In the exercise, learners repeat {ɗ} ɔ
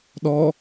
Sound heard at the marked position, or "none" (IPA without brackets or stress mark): ɗ